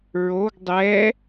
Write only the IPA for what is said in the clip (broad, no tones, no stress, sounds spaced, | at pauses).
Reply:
ɹ o ɡ dˤ ɛ